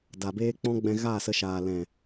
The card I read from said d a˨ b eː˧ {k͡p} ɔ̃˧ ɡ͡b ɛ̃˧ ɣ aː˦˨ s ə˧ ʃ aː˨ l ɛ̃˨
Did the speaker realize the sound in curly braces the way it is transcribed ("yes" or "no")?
yes